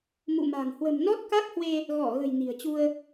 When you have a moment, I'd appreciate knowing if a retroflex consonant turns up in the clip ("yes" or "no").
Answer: no